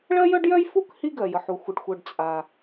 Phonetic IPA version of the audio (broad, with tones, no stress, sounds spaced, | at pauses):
ɭ ɜ˥ j œ˥ ɖ j œ˥ j f u˥ k h i˥ ɡ ɜ˩ j ə˩ ħ u˩ xʷ ə˩ ɖ xʷ œ˩ ɖ t͡sʼ a˩